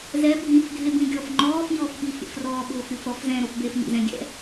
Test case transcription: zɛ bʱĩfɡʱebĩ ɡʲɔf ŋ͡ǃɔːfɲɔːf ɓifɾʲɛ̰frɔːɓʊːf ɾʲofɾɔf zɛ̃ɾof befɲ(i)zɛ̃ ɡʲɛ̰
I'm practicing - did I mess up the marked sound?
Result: yes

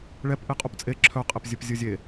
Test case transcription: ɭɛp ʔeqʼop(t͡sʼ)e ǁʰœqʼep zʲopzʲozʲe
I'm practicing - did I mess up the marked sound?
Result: no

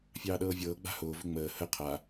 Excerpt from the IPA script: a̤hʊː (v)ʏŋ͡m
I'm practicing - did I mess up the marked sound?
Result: no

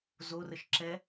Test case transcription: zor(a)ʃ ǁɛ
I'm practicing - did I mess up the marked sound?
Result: yes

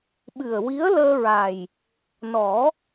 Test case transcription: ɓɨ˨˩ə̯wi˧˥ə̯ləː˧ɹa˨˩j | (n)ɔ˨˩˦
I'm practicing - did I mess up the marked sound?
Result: no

